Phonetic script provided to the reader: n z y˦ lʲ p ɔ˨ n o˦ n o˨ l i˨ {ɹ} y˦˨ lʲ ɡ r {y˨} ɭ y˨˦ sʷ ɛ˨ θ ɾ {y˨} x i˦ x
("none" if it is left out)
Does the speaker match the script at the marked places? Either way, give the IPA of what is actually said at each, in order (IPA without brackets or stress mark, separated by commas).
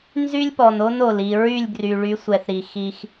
ɹ, y˨, i˨